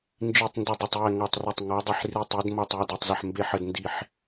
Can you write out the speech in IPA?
n d͡ʒ i˥˧ tˤ n d ɪ˥˧ dˤ ɪ˥˧ tˤ j ɛ˥˧ ŋ ɔ˥˧ tˤ r ɛ˥˧ tˤ ŋ ɔ˧˥ dˤ ɪ˥˧ ħ r i˥˧ tˤ i˧˥ d m ɔ˥˧ tˤ j ə˥˧ d e˥˧ tˤ z ə˥˧ ħ m b e˥˧ ħ ə˥˧ d n d i˥˧ ħ

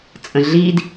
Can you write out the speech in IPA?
t͡sʼ ə̃ ɮ iː d

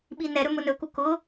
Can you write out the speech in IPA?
ɓ i n ɛ ɾ ɵ m ʊ n ɵ k u k ʊ

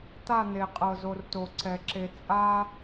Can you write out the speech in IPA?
t̪ a˦˨ n̪ e˨ qʼ ɤ˨ z o˨ r t o˨ ǀ ɛ˨ ǁ e˨ t͡sʼ a˦

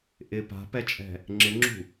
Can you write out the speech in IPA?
ʔ ɪ p a̤ p ɛ t͡ʃʼ ɛ̤ | ŋ͡ǁ ɪ ŋ͡ǁ ṳ

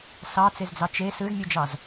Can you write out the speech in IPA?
s ɑ t͡s e z d͡z ɑ t͡ʃ e s ɯ z mʲ u d͡ʒ ɑ z

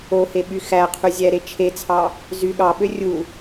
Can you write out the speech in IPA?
o h e ɓ y x æ qʰ y zʲ æ ɾ e t͡ʃʰ e t͡sʰ ɑ | z y ɠ ɑ ɓ ø rʲ u

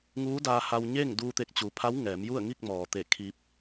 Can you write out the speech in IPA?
ŋ uː˧˥ d aː˧ h a˧ w ɲ e˥˨ ŋ d uː˧ t̪ e˧˩ k̚ t͡ɕ uː˩ pʰ a˧˥ w ŋ ɛː˩˧ m j u˥˨ ə̯ ŋ i˥˨ k̚ m ɔː˩ t̪ e˧˩ kʰ i˧ p̚

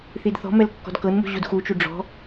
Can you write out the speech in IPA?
θ i d θ ɔ̤ m ɛ l kː ɔ̤ d k ɤ n m ṳ ʑ u d x u t͡ʃ u ɖ͡ʐ ɔ̤

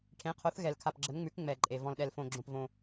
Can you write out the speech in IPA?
ʈʰ ẽ˨˦ qʰ o˨˦ θ ɣ ɛ˨ l kʰ a˨ p ɡ͡ǁ ə˨˦ n ŋ͡m ʉ˨˦ k ŋ͡m ɛ˨ ǃʼ e˨ v ɔ̃˨ l ɗ ɛ˨ l f õ˨ ɡ͡ǁ õ˨ p v õ˨

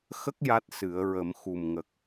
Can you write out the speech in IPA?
x ə˦˥ k̚ j a˦˥ t̚ s ɨ˨˩˦ ə̯ ɹ ə˨˩˦ m x u˨˩ m ŋ ə˨˩ k̚

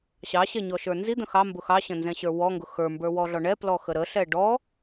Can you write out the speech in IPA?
ɕ ɑ ɕ ɛ ɲ ɔ ʃ ə˞ n z i d̪ ə̃ x ɑ m b ʊ x ɑ ɕ ə̃ n z ɛ̃ ɕ ə˞ w ɔ ŋ ɡ ʊ x ə˞ m b ə˞ w ɔ ɮ ɔ ɳ ɛ p l ɔ x ə ɾ ə ɬ ɛ ɖ ɔ

